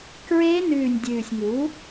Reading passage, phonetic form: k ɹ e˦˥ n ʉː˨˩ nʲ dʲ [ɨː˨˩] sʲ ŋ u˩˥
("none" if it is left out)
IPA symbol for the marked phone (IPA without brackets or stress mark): ʉː˨˩